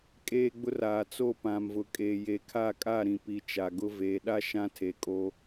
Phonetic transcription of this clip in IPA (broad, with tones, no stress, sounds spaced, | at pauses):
kʼ eː˦ ɡ͡b ʊ˦ r aː˨ t͡s o˦˨ p ã˨ m v ʊ˨ kʼ e˨ j e˨ kʰ a˦˨ kʼ a˦˨ ɾ ĩ˨ p i˨ t͡ʃ a˨ ɡ ʊ˦ v eː˨ ɗ a˦ ʃ ã˦ tʰ e˨ kʼ o˦